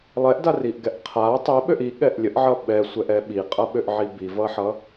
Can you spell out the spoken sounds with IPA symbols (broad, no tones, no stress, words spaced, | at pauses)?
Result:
lˠɛʔdariʔɡɛʔ qʰa tˤiɓøʔ iɠɛʔ lʲəʔʕʌ ɓɛsʷɛʔɛ ɓiqʼʌɓøʔʕi bivʌħʌ